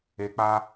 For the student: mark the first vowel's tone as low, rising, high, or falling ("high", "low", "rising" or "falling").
low